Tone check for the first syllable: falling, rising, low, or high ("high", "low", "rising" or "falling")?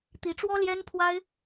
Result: rising